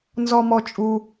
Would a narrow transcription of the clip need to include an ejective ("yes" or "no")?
yes